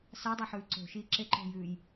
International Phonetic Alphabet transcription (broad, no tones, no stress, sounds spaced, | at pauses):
s a dˤ ɐ ħ ʉː ǀ o̤ ʃ iː ǁ e ǃ o̤ j ʉː j